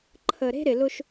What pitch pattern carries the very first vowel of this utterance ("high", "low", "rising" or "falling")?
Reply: low